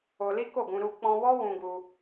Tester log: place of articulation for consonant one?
alveolar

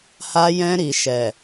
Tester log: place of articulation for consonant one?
glottal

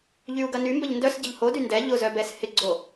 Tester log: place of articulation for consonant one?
palatal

